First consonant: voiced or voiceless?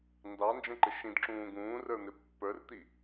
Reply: voiced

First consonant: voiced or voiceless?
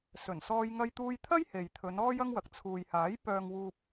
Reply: voiceless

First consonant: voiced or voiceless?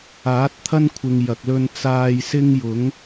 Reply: voiceless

